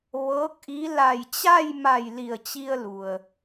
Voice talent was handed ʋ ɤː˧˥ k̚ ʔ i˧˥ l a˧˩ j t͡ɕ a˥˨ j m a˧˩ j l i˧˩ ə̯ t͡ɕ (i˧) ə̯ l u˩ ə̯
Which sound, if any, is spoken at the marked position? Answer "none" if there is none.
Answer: i˧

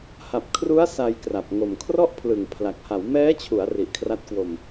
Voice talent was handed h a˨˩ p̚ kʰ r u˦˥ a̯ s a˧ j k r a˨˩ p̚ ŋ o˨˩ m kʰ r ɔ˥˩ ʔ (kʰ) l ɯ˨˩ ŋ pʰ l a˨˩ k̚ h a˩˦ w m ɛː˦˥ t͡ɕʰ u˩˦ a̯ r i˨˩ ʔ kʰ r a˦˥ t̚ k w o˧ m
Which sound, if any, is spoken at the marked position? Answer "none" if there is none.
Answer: pʰ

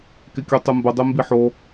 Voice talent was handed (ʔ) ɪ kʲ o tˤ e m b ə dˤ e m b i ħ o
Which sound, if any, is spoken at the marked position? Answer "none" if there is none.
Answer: k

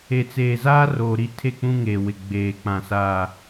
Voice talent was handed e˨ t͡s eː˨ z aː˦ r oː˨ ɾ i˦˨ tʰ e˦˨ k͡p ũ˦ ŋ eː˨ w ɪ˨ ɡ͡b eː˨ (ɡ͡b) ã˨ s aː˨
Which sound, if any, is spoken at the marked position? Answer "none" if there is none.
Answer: k͡p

